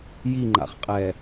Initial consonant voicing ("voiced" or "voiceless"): voiced